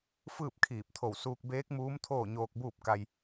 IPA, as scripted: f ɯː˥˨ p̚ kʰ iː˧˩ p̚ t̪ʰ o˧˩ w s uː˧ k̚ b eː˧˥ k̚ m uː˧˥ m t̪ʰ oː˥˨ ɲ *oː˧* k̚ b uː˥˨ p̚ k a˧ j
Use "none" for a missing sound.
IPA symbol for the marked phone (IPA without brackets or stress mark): oː˧